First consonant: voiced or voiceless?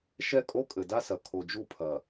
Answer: voiceless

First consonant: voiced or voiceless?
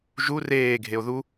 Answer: voiced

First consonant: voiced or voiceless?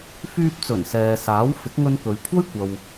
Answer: voiceless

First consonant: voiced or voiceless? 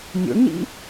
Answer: voiced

